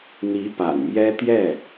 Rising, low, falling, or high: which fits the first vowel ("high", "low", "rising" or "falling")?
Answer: rising